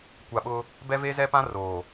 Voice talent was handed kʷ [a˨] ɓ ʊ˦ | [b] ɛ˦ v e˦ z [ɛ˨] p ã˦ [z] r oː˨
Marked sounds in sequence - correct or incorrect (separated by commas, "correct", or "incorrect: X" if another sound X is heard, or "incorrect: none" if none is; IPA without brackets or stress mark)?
correct, correct, incorrect: ɛ˦, incorrect: none